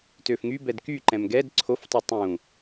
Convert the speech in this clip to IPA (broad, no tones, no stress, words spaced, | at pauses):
tøfŋybɛd kyǃɛ̃m ɡɛd ǀʰoftˤu tˤũ